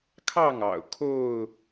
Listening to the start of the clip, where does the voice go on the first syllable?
falling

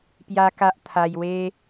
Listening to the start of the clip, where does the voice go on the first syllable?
high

